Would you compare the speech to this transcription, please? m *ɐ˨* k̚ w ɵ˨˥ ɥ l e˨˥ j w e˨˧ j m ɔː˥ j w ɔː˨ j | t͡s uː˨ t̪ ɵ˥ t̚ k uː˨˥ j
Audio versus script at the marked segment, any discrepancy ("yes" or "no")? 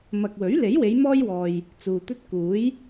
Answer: no